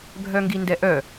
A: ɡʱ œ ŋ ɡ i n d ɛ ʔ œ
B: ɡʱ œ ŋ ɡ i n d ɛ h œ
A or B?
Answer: A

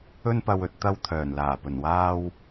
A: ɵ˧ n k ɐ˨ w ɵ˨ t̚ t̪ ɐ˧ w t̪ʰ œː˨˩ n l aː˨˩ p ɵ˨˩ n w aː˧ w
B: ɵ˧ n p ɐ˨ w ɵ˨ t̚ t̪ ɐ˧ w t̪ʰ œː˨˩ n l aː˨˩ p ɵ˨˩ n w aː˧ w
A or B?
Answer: B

